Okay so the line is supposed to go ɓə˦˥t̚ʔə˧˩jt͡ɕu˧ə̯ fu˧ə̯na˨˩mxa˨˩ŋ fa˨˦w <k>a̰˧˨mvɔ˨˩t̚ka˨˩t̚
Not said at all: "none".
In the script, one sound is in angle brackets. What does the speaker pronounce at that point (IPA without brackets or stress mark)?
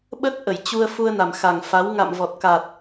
ŋ